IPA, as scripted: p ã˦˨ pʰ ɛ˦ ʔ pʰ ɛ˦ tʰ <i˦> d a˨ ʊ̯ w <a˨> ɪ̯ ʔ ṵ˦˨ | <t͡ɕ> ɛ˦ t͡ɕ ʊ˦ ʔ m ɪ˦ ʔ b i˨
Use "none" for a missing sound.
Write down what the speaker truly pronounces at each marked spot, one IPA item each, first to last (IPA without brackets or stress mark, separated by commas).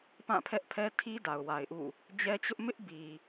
i˦, a˨, d͡ʑ